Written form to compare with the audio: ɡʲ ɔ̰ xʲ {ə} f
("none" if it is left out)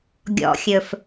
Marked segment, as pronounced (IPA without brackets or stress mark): ɵ